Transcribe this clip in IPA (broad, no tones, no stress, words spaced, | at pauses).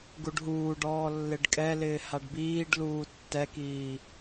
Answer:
ɡuɖɦuːɖɔː lːɪɖkʼɛlɪː haɖbiːɖ luːtːɛkiː